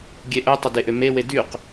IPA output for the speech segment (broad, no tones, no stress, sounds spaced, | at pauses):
ɡʲ e ʔ œ tˤ ə d e ʔ ø m e w e d y q